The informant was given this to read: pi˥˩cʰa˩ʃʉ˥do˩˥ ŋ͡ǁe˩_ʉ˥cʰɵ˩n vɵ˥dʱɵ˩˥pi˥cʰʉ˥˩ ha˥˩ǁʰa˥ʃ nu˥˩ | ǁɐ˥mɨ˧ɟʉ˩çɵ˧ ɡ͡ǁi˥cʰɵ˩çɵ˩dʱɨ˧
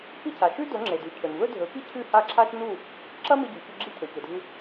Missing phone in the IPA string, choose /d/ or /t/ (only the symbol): d